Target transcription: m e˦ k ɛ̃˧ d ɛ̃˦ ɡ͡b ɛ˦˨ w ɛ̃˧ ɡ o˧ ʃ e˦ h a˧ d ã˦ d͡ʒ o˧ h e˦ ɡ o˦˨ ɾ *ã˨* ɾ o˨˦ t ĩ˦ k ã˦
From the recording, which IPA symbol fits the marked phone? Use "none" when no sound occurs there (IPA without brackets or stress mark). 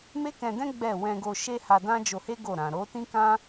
ã˨